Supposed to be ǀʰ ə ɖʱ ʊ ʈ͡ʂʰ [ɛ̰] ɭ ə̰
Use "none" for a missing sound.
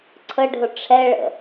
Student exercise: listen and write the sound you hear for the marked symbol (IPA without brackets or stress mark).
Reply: ɛ